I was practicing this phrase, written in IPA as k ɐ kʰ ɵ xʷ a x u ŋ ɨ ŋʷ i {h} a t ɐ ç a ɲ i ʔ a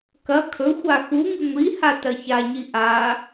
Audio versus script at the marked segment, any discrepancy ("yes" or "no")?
no